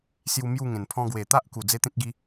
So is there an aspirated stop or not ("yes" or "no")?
yes